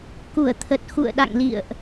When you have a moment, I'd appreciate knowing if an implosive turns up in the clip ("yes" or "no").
yes